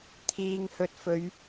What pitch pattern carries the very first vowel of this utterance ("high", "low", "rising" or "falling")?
low